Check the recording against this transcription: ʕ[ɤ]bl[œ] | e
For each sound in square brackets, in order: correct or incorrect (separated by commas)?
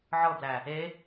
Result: correct, incorrect